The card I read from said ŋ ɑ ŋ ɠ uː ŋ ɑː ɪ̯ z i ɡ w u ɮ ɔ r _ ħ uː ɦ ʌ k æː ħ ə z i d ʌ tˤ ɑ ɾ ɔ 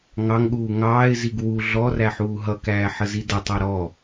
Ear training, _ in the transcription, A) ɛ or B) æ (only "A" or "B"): B